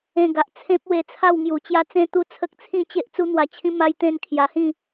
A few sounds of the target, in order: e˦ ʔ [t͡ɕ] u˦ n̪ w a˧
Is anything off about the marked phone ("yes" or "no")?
yes